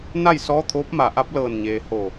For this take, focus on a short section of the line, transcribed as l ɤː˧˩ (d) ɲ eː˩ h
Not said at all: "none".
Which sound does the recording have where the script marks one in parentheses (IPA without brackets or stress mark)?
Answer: n